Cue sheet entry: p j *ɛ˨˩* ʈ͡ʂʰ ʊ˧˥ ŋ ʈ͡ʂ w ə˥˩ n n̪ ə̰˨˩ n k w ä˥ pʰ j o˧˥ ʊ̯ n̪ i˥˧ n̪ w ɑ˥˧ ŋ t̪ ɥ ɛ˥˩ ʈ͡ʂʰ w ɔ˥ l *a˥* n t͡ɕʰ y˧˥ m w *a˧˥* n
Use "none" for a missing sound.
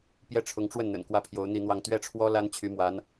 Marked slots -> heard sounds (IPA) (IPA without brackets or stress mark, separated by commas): ɛ˥˩, a˥, a˧˥